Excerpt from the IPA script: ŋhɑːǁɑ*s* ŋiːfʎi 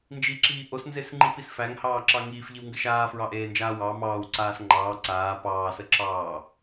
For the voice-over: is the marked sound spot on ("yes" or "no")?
no